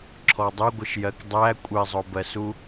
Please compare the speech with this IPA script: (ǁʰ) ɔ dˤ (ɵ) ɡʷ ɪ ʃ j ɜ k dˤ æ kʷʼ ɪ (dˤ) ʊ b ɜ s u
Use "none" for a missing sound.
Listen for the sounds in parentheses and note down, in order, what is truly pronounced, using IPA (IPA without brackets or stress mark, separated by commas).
ǁʰ, ʊ, zˤ